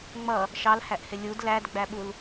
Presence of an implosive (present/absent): present